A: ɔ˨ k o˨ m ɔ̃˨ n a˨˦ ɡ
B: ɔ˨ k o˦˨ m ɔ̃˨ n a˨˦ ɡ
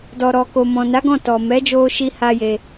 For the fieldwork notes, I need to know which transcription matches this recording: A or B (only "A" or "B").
A